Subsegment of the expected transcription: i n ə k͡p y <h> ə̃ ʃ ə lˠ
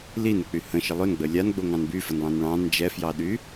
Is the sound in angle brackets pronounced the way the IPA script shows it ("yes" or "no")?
yes